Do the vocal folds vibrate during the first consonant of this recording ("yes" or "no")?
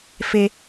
no